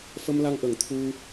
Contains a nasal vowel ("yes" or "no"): no